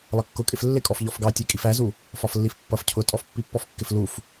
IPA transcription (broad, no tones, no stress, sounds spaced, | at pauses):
lˠ ʌ kː ʊ kʼ ɪ f lː ɪ kʼ ɔ f ʎ ɔ f ɡ ɑ tʲ ɛ kʼ i f æ z u | f ɒ f lː i f pː ʌ f cʰ ʊ tʼ ɔ f pː i pː ɔ f kː ɪ f l u f